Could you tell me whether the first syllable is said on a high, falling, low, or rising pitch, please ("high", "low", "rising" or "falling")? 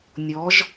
rising